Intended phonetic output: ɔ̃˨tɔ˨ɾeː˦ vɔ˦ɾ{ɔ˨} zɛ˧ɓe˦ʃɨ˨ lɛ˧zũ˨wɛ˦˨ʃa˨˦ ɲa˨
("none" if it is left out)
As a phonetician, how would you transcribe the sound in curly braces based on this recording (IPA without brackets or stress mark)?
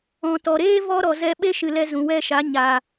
ɔ˨